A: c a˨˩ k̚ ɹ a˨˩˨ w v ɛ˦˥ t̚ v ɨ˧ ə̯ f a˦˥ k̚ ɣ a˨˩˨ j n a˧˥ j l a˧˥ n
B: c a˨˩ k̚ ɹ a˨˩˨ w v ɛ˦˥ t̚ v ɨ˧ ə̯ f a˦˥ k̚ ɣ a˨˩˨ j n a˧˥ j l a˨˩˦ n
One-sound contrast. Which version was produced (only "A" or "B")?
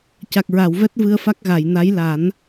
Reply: B